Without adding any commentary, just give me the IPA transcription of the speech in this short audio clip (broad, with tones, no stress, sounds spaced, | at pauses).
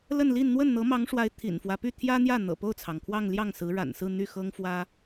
l ə˥˧ n l i˥˧ n n̪ w ə˥˩ n n̪ ɤ˧˥ m ɑ˧˥ ŋ ʂ w a˧˥ ɪ̯ t̪ʰ ḭ˨˩ n f w ä˦ p y˥˩ t̪ʰ j ä˥ n̪ j ä˥˩ n̪ ɤ̰˨˩ p o˥˩ ʊ̯ t͡sʰ ɑ˩ ŋ kʰ w ɑ˥˧ ŋ l j ɑ˥˩ ŋ s ɹ̩˧˥ ɻ a̰˨˩ n s ɹ̩˥˧ n̪ y˥˩ x ɤ˥ ŋ f w ä˥